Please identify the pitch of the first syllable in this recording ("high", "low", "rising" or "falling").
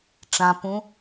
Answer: low